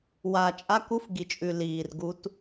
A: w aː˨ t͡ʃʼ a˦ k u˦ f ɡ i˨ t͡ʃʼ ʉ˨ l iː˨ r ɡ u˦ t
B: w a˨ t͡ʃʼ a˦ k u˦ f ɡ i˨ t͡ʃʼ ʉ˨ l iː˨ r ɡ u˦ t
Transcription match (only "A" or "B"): A